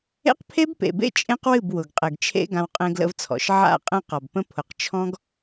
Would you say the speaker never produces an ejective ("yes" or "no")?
no